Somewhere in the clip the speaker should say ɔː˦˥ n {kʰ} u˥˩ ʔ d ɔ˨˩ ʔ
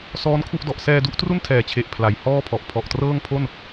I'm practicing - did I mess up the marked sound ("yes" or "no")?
no